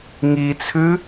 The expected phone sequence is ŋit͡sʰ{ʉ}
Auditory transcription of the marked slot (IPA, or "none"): ʉ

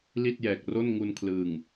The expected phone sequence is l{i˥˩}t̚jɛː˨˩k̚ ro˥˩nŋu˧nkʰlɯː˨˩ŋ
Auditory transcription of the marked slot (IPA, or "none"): i˥˩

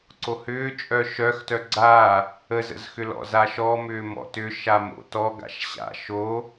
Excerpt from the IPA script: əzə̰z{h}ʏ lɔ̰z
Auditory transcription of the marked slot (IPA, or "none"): x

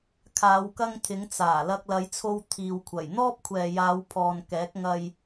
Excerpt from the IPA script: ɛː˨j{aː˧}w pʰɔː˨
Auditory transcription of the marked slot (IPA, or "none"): aː˨˧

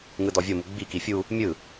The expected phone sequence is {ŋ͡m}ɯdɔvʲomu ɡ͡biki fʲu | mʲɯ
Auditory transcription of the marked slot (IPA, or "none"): ŋ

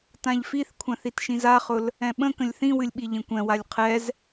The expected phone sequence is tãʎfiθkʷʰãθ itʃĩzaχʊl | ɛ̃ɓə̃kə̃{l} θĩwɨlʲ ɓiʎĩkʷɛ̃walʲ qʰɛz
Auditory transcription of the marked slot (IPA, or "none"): lʲ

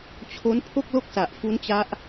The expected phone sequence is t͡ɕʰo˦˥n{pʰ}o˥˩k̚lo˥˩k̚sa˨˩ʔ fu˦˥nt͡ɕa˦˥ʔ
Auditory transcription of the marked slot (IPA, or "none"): pʰ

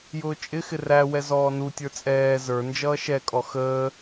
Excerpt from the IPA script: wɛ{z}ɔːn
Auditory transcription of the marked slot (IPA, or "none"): z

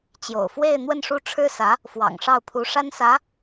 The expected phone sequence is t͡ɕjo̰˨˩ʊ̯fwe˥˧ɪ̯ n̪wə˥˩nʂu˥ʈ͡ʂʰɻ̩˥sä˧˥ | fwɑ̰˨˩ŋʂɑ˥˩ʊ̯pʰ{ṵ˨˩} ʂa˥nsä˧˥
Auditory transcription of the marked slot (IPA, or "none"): u˧˥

